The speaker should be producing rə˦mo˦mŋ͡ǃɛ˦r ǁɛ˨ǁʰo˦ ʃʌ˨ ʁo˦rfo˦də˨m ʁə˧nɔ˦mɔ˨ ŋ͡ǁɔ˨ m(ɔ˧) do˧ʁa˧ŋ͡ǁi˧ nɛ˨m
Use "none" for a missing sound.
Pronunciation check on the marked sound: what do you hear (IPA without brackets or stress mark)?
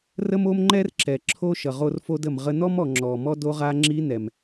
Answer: ɔ˦